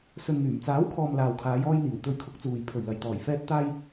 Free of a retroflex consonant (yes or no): yes